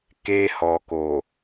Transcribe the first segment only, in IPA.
k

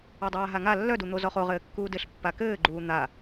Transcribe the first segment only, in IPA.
ɔ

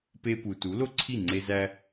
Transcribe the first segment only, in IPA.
p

